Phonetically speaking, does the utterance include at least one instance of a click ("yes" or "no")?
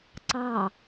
yes